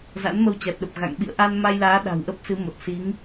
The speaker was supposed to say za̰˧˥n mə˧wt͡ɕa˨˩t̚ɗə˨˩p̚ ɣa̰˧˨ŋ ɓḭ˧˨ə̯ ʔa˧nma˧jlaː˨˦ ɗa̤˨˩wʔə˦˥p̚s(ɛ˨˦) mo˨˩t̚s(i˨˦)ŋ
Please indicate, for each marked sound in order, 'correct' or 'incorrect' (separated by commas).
incorrect, correct